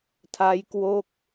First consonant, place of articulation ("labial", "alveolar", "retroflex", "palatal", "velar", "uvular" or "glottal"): alveolar